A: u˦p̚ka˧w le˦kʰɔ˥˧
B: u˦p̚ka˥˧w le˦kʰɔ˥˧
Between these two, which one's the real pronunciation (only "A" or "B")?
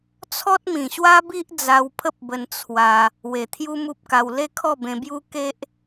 A